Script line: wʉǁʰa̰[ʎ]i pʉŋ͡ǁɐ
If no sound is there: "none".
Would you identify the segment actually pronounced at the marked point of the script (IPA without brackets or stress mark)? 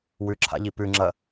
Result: ʎ